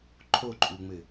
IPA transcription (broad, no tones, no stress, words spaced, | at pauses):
ǃʰoǃʼuŋ͡mɘ